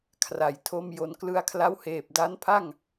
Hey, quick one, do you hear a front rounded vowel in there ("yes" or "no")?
no